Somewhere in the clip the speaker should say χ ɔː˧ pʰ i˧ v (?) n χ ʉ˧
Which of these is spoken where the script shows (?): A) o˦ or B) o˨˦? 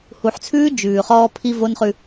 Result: A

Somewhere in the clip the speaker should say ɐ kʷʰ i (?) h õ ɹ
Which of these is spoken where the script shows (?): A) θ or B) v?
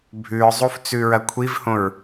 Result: B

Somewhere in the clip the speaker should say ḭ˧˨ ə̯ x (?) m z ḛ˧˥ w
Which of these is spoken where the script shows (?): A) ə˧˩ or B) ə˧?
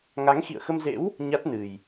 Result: B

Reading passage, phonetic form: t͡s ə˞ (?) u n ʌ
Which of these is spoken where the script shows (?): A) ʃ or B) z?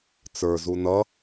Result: B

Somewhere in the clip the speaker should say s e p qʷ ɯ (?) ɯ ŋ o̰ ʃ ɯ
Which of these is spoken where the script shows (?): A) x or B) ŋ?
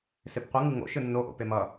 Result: B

